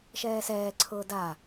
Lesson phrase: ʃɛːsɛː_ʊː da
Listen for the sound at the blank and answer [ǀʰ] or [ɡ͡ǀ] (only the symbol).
ǀʰ